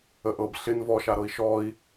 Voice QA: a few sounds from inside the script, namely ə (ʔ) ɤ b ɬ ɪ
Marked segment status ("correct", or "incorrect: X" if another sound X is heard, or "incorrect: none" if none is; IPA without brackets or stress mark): correct